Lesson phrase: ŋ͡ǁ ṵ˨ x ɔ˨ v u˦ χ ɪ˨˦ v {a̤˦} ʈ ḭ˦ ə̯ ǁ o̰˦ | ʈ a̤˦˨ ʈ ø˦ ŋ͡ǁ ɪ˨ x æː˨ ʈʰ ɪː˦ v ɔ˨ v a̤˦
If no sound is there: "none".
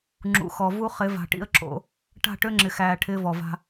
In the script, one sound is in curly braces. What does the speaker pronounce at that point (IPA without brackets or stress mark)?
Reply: a̤˨